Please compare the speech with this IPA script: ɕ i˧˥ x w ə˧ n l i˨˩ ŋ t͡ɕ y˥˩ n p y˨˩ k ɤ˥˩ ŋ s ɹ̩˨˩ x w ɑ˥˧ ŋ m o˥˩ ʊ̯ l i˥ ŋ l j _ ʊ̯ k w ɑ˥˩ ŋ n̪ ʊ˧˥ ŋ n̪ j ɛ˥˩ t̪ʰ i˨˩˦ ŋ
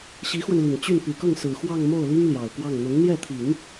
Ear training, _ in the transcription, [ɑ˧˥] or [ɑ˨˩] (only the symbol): ɑ˨˩